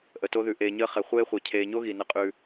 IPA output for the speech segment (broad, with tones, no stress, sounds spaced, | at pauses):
ʔ ə˨ t o˦ ð ʉ˨ ʔ eː˨ ɲ əː˦ χ ɛ˨ χʷ eː˦ χʷ ɛ˨ cʰ eː˨ ɲ o˦ ɣ i˨ n ə˦ qʼ ʉ˦